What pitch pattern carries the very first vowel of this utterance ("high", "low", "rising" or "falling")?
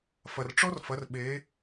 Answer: low